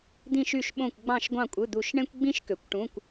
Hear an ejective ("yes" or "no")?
yes